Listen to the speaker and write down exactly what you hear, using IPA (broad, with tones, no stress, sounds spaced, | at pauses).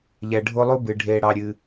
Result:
ʎ ɛ˨ ɖʱ o˦ lˠ u˦ b ɨ˩ ɖʱ eː˨ ɽ ɑ˨ ɾʲ ɨː˩